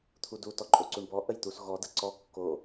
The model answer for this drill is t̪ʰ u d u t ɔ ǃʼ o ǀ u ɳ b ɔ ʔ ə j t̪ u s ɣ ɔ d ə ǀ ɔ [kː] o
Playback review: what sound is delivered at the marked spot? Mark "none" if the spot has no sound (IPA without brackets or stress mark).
kː